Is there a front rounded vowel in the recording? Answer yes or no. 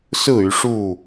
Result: yes